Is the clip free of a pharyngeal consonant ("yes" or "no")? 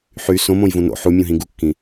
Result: no